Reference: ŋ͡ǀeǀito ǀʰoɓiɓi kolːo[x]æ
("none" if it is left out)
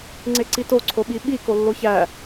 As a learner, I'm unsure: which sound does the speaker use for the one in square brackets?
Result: ç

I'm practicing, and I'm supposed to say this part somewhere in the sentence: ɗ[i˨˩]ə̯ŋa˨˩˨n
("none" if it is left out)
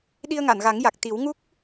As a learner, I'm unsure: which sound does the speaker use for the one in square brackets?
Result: i˧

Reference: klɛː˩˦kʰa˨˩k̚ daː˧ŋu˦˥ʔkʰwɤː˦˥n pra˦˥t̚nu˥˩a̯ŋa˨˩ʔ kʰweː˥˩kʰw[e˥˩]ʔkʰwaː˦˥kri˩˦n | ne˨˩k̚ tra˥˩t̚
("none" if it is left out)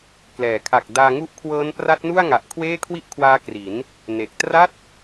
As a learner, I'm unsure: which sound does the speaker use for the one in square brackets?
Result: i˥˩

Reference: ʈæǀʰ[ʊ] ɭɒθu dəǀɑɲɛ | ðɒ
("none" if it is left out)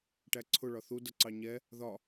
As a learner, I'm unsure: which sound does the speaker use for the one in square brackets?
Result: ʊ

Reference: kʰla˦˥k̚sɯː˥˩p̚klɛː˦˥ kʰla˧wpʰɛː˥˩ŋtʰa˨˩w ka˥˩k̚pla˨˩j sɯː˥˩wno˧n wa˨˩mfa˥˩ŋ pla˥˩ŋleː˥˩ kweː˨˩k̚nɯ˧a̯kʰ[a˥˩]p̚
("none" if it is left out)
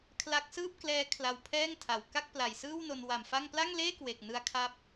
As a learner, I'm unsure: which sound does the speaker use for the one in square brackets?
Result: a˦˥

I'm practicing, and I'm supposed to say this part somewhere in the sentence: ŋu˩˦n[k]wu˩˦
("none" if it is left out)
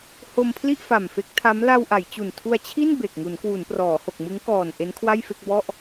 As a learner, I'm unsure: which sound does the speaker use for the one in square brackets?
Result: k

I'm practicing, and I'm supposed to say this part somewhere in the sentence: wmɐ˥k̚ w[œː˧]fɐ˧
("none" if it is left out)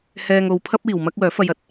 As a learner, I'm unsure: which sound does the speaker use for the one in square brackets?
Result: œː˨˥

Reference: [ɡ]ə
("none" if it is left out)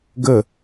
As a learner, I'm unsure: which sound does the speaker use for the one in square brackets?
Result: ɡ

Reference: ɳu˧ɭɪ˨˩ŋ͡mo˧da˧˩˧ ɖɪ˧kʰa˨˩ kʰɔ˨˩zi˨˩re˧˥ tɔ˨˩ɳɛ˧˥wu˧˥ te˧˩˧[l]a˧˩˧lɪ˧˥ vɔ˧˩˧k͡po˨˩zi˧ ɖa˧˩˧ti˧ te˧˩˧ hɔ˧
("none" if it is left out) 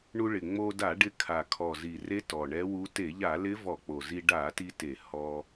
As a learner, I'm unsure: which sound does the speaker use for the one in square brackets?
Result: ʎ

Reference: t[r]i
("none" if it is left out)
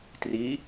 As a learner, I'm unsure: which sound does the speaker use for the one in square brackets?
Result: r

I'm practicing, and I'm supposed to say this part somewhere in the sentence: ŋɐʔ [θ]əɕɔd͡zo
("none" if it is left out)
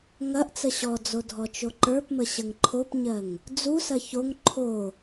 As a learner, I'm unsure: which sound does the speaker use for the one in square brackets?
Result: t͡s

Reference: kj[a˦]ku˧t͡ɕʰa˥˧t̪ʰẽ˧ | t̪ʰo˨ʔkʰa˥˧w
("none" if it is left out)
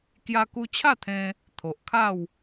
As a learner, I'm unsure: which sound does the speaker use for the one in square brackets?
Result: a˧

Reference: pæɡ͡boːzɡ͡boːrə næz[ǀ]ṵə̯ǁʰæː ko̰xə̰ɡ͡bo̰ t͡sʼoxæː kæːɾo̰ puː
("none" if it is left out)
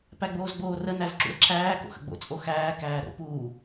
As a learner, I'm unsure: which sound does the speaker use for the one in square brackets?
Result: ǁ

